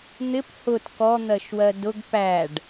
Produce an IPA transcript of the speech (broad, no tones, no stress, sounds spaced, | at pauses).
n̪ ɪ p h ʊ t k ɔ n̪ ɜ ʃ w ɜ d ʊ ɡ p æ ɖ